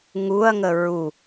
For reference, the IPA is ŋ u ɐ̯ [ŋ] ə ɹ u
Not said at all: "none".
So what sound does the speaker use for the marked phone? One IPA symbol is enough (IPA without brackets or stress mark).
ŋ